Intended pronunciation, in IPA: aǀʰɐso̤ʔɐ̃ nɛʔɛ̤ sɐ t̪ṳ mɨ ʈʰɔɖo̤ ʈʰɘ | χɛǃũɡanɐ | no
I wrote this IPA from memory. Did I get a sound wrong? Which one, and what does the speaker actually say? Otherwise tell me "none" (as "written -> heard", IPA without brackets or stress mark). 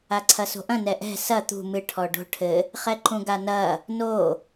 none